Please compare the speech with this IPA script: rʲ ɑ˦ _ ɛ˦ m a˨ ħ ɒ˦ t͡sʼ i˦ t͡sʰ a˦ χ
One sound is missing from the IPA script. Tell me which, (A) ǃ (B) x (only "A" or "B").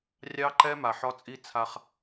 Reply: A